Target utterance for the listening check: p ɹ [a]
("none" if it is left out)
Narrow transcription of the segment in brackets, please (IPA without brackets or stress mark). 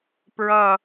ʌ